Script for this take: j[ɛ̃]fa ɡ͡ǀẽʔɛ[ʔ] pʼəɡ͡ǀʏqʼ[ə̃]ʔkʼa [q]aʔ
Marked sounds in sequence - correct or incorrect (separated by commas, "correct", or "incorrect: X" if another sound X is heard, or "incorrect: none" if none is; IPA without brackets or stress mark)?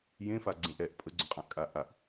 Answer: incorrect: ẽ, correct, incorrect: ã, incorrect: ʔ